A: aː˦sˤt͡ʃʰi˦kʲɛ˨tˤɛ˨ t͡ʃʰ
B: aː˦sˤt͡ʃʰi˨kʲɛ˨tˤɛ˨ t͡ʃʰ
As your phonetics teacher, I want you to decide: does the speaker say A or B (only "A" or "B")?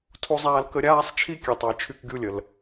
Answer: A